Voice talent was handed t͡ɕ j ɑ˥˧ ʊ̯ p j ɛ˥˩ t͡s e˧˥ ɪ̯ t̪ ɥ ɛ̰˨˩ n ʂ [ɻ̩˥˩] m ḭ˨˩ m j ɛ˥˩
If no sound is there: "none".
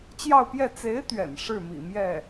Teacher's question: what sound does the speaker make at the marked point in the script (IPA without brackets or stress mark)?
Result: ɻ̩˥˩